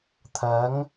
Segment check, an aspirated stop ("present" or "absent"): present